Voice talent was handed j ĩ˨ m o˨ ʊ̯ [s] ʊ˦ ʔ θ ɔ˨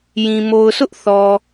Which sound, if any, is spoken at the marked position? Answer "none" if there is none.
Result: s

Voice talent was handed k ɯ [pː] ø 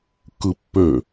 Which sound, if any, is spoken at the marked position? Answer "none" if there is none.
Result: pː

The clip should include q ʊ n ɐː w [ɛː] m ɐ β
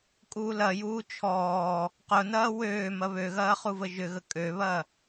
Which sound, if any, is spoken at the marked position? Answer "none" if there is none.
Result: øː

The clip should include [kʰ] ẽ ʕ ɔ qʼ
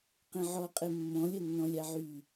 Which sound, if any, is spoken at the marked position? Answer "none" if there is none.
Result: q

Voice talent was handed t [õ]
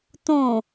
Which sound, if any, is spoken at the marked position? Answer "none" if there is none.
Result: õ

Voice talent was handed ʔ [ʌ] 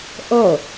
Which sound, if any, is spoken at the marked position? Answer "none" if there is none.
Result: ʌ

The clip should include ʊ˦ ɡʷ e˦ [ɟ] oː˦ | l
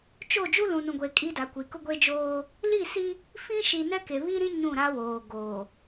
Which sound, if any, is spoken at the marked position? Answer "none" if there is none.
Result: d͡ʒ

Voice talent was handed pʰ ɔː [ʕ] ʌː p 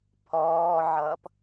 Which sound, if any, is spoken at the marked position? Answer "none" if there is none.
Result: ʕ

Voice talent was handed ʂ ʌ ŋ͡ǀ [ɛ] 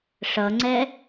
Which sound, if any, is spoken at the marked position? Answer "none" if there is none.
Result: ɛ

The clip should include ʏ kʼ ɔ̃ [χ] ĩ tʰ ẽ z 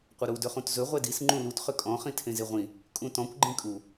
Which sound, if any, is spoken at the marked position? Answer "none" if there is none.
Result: χ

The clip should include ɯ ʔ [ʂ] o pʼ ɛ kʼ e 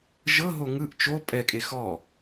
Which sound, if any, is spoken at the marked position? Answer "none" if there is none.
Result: t͡ʃ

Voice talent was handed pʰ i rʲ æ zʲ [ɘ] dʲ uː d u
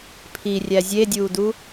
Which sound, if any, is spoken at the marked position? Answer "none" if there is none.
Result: e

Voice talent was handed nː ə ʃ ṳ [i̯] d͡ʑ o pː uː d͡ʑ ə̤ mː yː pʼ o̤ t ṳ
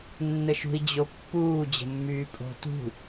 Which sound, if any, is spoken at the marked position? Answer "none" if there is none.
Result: i̯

